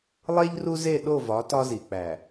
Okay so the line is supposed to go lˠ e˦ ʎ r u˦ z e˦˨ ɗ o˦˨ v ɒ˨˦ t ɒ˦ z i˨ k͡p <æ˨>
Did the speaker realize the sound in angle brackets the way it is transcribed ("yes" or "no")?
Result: yes